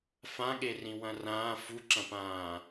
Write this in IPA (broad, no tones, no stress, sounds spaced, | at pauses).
f ã ɠ e r ĩ w ɐ̃ r ãː f u ǁ ɐ̃ p ãː